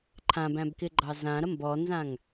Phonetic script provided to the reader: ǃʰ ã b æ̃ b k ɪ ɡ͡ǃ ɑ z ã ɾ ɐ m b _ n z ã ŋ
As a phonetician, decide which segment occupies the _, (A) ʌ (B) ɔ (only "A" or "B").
B